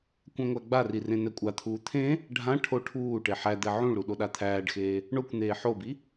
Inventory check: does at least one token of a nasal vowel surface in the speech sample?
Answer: yes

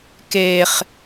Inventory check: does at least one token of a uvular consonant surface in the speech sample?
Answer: yes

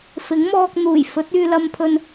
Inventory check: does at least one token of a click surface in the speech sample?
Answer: no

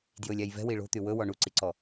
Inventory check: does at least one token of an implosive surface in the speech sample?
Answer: no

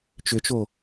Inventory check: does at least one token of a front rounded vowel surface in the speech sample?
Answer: yes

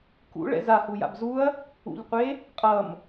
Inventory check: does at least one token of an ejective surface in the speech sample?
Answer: yes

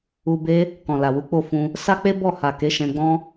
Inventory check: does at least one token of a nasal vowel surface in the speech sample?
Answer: yes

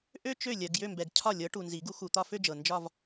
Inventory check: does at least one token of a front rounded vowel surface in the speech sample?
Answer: yes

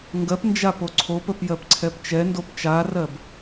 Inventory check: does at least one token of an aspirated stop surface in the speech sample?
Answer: yes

